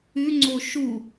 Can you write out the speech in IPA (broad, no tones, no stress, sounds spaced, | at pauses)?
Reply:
ʉ ŋ͡ǀ o ʃ u